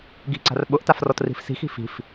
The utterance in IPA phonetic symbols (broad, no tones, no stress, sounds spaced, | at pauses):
ɡ i̤ ǀ a̤ r ɓ ʊ ʔ t a f r ɔ t r i̤ f s i̤ x i̤ f i̤ f